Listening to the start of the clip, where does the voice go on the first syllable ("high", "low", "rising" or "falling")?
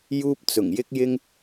high